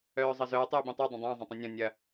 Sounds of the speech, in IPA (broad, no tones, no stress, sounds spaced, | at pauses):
œː zˤ ɐ z œː tˤ j e b ĩ tˤ u dˤ ə̃ dˤ ə̃ː zˤ ɐ̃ tˤ ĩ nʲ ɔ̃ nʲ ɐ